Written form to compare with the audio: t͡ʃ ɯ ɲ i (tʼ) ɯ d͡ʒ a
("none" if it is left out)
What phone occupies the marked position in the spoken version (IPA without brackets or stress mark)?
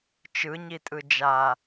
tʼ